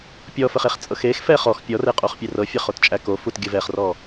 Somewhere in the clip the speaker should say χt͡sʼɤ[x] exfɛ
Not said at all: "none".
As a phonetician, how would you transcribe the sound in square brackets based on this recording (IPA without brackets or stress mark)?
x